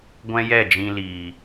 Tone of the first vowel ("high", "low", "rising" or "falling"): high